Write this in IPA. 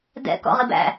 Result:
dɛ̰kɔ̰ʁi bæ̰

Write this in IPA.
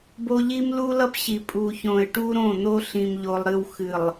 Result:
bo˦ ʎi˦mlu˦lʌ˦pɕi˨ pʼu˨çõ˨ɪ̯ʈu˦ɾõ˦˨ n̪o˦ɬĩ˨mʎo˨lˠɾɨ˨w xɨ˨lˠ

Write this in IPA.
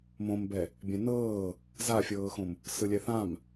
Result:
mõmbɛ | bʲɛ̃nɤː | zafʲɤːxõm | sɯlʲɛθãm

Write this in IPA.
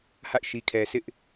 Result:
ha̰˦˨ɪ̯ʃi˨kʰɛ˨ sɪ˦ʔ

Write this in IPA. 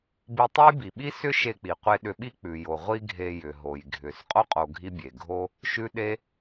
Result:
bi˧tˤe˥jbi˩ɓi˥ sʏ˥ ʃe˧k͡pi˩qʷe˧ ɗʏ˧ɓi˥ k͡pʉ˩jo˩ ʁʷi˥ɡʱe˧jʏ˩ ɦo˩jɡʱʏ˩s qʼo˥qʼo˩ ɡʱi˥bʲe˩ ɡʱo˥ | ʃʉ˥ɗe˥

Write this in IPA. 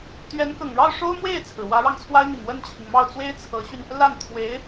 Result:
t̪ɥɛ˧˥nkɤ˨˩ŋɻɑ˥˩ʊ̯ʂo˥ʊ̯ mwe˥˩ɪ̯t͡sʰɹ̩˩ wä˧˥ɻɑ˧ŋt͡sʰwa˥ɪ̯n̪i˨˩ŋ wə˥˩nt͡ɕʰi˩ŋmɑ˥˩ʊ̯ t͡swe˥ɪ̯t͡sʰɤ˧˥ɕy˧n | la˥˩nt̪ʰwe˧˥ɪ̯

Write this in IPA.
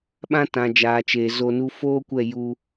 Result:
ɓã˦tã˨d͡ʒaː˨t͡ʃeː˨ zo˧nu˦ foː˦kʷɛ˦˨ ju˧

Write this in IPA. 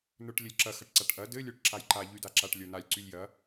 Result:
nə˞ʈlʲəlʲǁɐ xɐʈǀaʈʔɐ dɘ lʲə˞ʈǁajǃa ʎydaǁaʈ lʲə˞nalʲ ǀylʲjɐ

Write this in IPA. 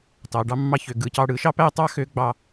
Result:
tɑ˩˧ɖɑ˥ mːɑ˧çø˩˧ ɡɯ˩˧cɑ˧ ɽɯ˩˧ʃɑ˥ pæ˥tˤɑ˥ xø˧˥ɡ͡bɑ˧

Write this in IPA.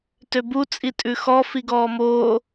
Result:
tøbu t͡sʼitʼʉxɔ fiɡɔːmoː

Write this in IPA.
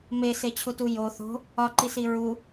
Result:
meset͡ɕʰutu jo θo̤ | ɒǃisi ɹu

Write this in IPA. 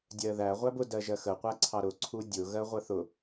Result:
dʲɜðæ ʁʷæbʊ dɜʒɜxə qʷæǀʰɑɾʊ ǀʰudʲʊ ɣɜʁʷɜθʊ

